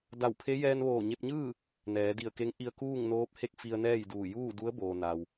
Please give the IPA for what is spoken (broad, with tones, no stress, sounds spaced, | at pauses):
d a˧˩ w pʰ e˧˥ j ɛː˧ n ʋ oː˧˩ ɲ e˧ p̚ ɲ ɯː˥˨ | n ɛː˩˧ d i˧˩ ə̯ k e˧˥ ŋ ʔ i˧ ə̯ k uː˥˨ ŋ n oː˧˥ p̚ h e˥˨ k̚ f i˧ ə̯ n ɛː˥˨ j d uː˧˩ j uː˥˨ d u˧˥ ə̯ b oː˩ n a˩ w